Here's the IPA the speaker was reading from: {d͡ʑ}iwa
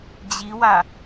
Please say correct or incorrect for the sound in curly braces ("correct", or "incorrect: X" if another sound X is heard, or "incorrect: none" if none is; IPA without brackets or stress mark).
correct